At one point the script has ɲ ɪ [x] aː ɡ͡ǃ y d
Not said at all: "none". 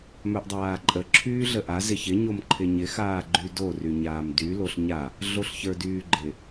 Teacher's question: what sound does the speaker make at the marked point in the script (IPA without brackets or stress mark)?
x